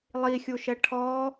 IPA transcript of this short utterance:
lˠ i xʲ u ʃ ɛ ʈʰ ɔ

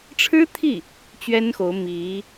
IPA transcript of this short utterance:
ʈ͡ʂʰ ɻ̩˥ t̪ʰ i˥˩ | t͡ɕ ɥ ɛ˥ n x o˧˥ ʊ̯ m i˧˥

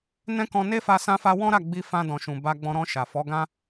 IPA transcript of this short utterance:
n ɛ̃˦ k ɔ̃˧ n e˦ f a˧ s ã˦ f a˦ w ɔ̃˦ ɾ a˦˨ ɡ͡b i˧ f ã˧ d ɔ̃˨ ʃ ũ˨ b a˧ ɡ͡b ɔ̃˧ ɾ ɔ̃˧ ʃ a˨ f ɔ˨˦ ɡ ã˦

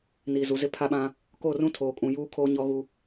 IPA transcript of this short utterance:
n iː˨ z u˨ z ɪ˦ pʰ a˦ ɓ ã˦ | k o˦˨ r ũ˦ tʰ oː˨ kʼ ũ˨ j uː˦ kʰ oː˦ ɲ ɔ˦ ɣ u˦

